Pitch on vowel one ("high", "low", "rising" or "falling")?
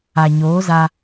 low